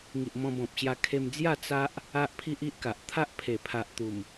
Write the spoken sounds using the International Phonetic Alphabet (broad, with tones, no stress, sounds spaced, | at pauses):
ŋ i˨ ʔ m ɔ̃˧ b ɔ̃˨ p̚ ɕ j a˧ kʰ e˧ m d͡z j a˥˧ t͡s a˦ ʔ | a˦ ʔ pʰ i˦ ʔ i˦ ʔ k a˨ ʔ t̪ʰ a˦ ʔ pʰ e˨˩ pʰ a˨ ʔ t̪ u˨˩ m